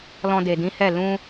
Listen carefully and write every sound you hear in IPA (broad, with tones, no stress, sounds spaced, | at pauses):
l ɔ̃˧ d e˨ d ĩ˨˦ h ɛ˦˨ l ũ˧